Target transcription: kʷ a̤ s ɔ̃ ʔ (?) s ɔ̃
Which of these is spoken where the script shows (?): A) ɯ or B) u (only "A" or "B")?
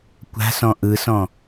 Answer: A